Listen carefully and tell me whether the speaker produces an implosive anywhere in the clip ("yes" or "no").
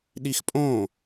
yes